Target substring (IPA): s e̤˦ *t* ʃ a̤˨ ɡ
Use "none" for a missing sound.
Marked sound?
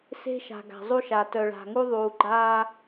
none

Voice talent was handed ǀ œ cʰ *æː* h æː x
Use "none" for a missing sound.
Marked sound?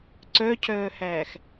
œː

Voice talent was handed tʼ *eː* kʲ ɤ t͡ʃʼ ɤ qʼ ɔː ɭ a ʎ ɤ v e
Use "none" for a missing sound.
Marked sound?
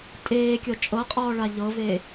eː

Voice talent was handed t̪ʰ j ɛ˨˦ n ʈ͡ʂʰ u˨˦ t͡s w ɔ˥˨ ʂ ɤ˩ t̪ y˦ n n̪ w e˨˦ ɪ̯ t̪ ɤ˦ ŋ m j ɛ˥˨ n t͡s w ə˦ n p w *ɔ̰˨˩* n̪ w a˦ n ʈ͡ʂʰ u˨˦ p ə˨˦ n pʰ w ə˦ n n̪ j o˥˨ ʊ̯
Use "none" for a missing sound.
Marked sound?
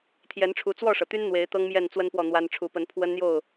ɔ˥˨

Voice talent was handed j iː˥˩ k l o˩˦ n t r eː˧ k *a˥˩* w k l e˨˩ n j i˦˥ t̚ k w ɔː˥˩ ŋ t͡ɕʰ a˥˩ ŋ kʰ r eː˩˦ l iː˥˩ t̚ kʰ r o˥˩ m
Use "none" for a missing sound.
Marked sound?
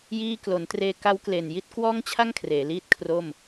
a˦˥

